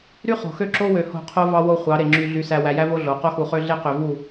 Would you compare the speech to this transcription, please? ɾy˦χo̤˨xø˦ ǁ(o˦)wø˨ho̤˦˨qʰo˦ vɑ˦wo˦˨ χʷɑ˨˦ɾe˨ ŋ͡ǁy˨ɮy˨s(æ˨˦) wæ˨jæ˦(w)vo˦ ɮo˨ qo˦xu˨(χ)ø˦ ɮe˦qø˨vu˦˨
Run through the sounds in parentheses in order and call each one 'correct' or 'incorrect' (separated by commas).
correct, incorrect, incorrect, correct